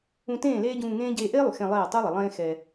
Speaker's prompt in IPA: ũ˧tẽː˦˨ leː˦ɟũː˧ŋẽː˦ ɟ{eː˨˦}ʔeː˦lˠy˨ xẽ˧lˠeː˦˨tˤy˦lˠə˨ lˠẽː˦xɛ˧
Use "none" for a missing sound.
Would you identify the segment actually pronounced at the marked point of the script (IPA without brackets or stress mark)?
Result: eː˧